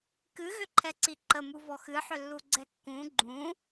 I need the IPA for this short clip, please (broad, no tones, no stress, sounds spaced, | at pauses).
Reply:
k ɨ ɣ ʏ ǃʰ ɛ ǀ i ǃ ə m u v ɔ x ɨ ħ ʏ lː u ɡ͡ǀ ɛ kː ũ ɡ͡ǃ ũ